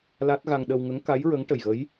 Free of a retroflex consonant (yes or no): no